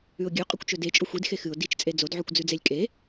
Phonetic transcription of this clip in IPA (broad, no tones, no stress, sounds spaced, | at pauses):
ʉ ʊ̯ ɡʲ ʉ qʼ ɵ kʷ t͡ʃ ɵ d e t͡ʃʼ o xʷ i d x e x ɨ ʊ̯ d i t͡ʃ t͡sʼ e d͡z o d ʕ ʉ kʷ d͡z ʉ d͡z e lʲ kʼ e